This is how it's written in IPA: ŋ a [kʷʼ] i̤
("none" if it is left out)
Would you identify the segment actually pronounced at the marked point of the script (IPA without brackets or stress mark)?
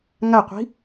qʷ